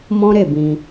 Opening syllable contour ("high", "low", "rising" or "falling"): high